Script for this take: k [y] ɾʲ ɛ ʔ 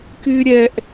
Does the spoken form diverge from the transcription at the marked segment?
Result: no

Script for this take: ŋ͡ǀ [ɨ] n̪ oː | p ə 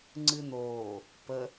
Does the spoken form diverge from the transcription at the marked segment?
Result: no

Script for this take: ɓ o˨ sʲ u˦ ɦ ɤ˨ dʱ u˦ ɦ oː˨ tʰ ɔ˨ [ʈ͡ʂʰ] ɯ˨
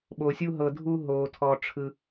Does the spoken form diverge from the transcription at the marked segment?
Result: no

